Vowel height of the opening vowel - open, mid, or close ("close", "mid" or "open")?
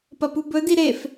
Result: open